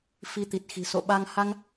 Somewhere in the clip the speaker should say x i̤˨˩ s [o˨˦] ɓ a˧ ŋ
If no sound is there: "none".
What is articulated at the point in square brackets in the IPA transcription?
o̰˧˨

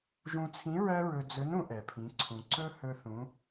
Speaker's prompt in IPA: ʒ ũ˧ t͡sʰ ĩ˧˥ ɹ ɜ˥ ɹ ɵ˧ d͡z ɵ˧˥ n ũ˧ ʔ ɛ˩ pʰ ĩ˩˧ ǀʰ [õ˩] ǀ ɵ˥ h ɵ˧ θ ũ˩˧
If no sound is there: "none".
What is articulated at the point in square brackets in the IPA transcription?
ũ˩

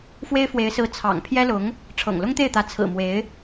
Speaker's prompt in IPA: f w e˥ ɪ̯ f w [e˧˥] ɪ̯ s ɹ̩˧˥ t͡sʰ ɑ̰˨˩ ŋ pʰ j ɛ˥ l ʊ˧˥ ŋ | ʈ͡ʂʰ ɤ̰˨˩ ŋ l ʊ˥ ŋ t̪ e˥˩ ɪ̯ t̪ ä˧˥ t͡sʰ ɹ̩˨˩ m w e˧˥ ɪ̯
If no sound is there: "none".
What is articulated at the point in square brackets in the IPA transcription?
e˧˥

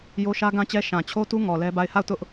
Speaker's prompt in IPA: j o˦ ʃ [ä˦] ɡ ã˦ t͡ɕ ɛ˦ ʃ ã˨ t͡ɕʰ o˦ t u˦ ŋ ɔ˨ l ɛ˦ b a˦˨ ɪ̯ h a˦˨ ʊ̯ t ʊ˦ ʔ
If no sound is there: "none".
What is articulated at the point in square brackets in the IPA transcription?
ä˦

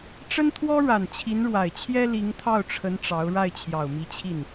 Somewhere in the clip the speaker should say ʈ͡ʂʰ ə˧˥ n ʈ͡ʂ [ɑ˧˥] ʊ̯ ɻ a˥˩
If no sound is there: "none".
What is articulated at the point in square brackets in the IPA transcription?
ɑ˧˥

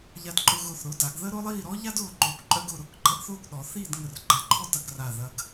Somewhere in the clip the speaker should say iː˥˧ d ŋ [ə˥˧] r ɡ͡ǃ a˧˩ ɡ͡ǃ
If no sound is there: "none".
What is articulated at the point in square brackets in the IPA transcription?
ə˧˩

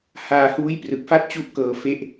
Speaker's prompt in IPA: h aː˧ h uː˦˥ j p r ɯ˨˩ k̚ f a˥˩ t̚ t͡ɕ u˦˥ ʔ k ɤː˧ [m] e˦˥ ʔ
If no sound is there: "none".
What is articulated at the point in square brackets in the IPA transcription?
f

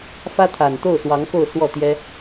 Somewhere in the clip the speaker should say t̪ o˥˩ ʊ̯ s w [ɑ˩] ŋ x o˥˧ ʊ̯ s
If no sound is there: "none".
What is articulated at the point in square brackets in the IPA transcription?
ɑ˧˥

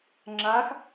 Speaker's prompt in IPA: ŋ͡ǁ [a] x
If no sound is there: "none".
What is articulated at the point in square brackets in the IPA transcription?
a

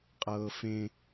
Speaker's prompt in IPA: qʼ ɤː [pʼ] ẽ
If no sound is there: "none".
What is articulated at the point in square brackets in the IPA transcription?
f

